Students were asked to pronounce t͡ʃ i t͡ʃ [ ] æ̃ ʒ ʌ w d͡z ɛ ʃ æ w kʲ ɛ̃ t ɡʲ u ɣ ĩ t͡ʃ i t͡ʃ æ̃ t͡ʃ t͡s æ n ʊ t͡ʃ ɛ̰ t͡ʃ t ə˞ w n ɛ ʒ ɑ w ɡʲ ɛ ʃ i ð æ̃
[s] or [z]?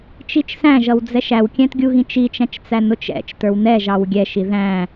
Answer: s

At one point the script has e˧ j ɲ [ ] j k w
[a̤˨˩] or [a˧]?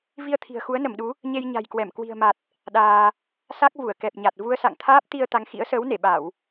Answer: a̤˨˩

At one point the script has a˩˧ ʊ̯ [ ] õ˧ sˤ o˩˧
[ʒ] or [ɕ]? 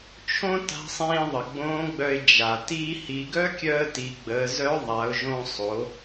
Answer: ʒ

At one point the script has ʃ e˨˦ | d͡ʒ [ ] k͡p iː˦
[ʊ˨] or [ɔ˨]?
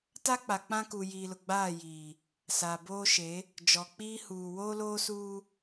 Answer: ɔ˨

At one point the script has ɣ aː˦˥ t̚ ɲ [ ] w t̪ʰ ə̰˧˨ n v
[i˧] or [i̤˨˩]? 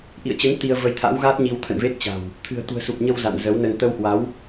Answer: i˧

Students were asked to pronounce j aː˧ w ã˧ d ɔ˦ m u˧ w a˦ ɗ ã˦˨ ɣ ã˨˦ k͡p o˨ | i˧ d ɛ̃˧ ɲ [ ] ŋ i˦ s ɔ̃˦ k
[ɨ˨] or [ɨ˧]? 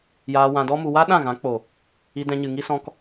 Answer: ɨ˨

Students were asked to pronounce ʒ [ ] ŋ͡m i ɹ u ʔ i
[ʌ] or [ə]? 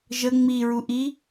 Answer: ə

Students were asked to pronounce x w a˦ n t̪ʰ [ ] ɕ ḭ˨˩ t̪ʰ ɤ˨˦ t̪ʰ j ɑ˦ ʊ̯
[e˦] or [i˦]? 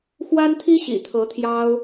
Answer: i˦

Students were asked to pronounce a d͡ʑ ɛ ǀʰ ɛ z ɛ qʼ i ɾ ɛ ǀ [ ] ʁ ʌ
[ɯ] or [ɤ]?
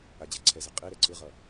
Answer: ɯ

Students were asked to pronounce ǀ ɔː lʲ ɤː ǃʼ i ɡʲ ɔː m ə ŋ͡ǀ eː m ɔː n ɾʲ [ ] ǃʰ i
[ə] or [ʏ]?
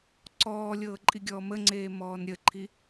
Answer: ə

